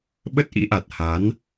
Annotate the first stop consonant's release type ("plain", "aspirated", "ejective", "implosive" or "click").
implosive